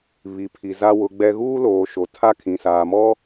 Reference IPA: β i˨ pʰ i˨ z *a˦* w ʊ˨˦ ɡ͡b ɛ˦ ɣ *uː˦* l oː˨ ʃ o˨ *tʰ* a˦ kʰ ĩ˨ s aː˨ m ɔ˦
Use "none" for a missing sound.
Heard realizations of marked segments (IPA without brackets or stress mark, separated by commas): a˦, uː˦, tʰ